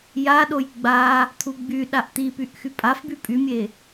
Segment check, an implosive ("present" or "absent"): present